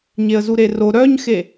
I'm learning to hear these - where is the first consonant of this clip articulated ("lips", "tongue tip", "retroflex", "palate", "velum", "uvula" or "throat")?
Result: palate